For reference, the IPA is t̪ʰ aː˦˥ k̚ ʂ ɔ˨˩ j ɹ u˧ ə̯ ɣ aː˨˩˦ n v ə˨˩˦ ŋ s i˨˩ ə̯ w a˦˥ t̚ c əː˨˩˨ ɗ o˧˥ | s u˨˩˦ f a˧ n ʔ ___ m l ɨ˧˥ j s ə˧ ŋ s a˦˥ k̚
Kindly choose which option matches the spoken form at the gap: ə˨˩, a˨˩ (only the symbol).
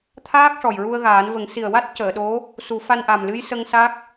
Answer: a˨˩